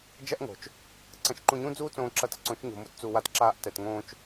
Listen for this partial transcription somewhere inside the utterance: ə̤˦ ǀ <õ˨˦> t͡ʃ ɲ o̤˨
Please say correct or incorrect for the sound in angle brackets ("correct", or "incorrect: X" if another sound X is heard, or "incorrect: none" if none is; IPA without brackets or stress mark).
correct